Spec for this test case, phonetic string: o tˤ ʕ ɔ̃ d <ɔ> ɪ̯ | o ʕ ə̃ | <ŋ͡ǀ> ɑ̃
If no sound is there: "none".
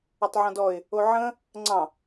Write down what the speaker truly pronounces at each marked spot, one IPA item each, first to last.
ɔ, ŋ͡ǀ

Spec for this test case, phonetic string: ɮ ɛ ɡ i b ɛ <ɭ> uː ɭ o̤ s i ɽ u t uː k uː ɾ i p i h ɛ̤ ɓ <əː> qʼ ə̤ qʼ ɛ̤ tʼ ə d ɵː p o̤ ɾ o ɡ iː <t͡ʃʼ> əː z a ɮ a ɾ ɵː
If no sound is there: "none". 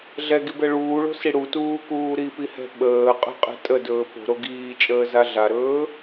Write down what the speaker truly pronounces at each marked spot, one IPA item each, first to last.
ɭ, əː, t͡ʃʼ

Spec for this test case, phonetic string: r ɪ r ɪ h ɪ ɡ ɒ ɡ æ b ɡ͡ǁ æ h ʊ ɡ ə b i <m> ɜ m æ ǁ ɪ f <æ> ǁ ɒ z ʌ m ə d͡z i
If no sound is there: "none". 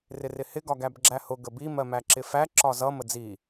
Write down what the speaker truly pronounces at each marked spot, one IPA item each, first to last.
m, æ

